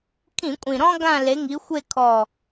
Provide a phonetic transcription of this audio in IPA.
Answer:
kʰ ĩ˧˩˧ kʷʼ ĩ˨˩ ɾ ɔ̃˦ ɡ ã˦˨ l e˨˦ ŋ i˨˦ xʷ e˦˨ kʰ ɔ˦˨

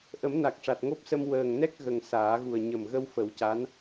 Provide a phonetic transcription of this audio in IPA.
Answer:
ʔ ə˨˩˦ m n a˨˩ k̚ ʂ a˨˩ t̚ ŋ o˦˥ p̚ s ə˧ m w əː˨˩ ŋ n ɛ˦˥ k̚ ɣ ə˨˩ ŋ s aː˨˩˦ ɣ u˨˩ ə̯ ɲ ə˨˩ m ɣ ə˧ w f ə˨˩˦ w c a˧˥ n

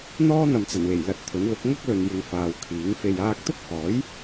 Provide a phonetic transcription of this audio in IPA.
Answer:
n̪ ɔː˥ n̪ ɐ˨ m t͡s ɐ˨˩ n w e˨˩ j l ɐ˧ t̚ t̪ʰ ɵ˨˥ n l ʊ˨˥ k̚ ŋ ɐ˥ k̚ l ɵ˨ n j ɪ˨ ŋ f aː˨ w kʰ iː˨˥ ŋ f e˧ j aː˥ k̚ t̪ ʊ˥ k̚ h ɔː˨˥ j

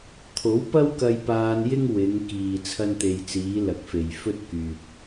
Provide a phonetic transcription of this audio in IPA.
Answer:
t̪ʰ o˨˥ w p ɐ˥ w k ɐ˧ j p aː˧ n j ɪ˥ ŋ w ɪ˨˧ ŋ k iː˨ t͡sʰ ɐ˥ n t̪ e˧ j t͡s iː˨˧ l ɐ˨˥ k̚ f e˨ j f ɵ˥ t̚ k yː˨ p̚

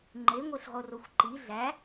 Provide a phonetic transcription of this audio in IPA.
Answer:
ŋ͡ǃ e ŋʷ e ɬ ʁ o r o xʷ ǃ i ɮ æ

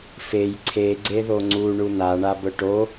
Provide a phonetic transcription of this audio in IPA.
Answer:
f e j ǀʰ e ɡ͡ǀ e ð o ŋ͡ǀ u ɳ u n a ɳ a b ʊ ʈ o

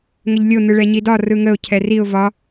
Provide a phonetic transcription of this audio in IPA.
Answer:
ŋ ə ʎ lʲ o n̪ ɯ ɭ ɛ ɲ i d ɒ r ɯ ŋ ə ʊ̯ cʰ ɛ r i ʊ̯ v ɒ

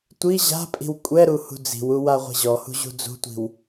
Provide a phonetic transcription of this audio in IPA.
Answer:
tʷ i ʑ a̤ pʼ i̤ w kʷʼ ɛ ɾ u h ṳ d͡z i̤ w u w a ʁʷ i̤ ʑ ɔ h ṳ ʑ ṳ d͡z ṳ tʷ i̤ w

